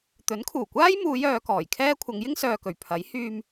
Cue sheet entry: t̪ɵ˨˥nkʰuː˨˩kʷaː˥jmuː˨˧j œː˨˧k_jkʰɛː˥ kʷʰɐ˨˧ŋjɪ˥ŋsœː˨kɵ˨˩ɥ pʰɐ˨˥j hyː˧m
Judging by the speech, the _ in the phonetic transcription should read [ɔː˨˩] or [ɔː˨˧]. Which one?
ɔː˨˩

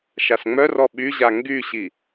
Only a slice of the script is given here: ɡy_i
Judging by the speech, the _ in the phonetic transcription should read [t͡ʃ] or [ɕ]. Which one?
ɕ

